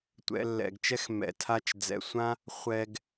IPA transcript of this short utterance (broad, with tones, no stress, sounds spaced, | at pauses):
tʷ ɛ̰˧ lː ɛ̰˨ ɡ t͡ʃ ɛ˦ x m ɛ̰˨ tʰ a˦˨ t͡ʃ d͡z ɛ̰˨ sʷ ã˦ | χʷ ɛ˧ ɡ